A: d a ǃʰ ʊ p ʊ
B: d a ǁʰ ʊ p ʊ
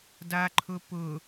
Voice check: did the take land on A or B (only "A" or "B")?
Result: A